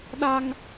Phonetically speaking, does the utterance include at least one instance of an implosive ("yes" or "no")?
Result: yes